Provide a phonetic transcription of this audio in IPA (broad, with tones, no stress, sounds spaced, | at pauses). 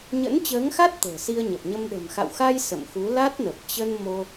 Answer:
ɲ ə̰˧˥ n t͡ɕ əː˨˦ ŋ x a˦˥ t̚ t̪ ə̤ː˨˩ s i˧ ə̯ ɲ ə˨˩ p̚ ɲ ə˧ m ɗ ə̤˨˩ m x a̰˧˨ w x a˧ j s ə̰˧˨ m x u˨˦ l a˦˥ t̚ n ə˨˩ p̚ t͡ɕ ə˧ n m o˧